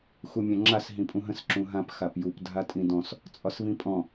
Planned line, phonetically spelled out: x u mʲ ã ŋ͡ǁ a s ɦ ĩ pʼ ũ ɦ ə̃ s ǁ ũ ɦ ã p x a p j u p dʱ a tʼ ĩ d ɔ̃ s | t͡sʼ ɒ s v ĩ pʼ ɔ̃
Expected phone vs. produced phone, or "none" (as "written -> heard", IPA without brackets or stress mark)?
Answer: none